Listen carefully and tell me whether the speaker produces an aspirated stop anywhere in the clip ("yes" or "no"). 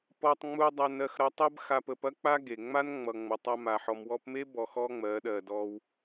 no